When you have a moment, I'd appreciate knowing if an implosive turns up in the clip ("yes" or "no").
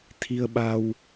yes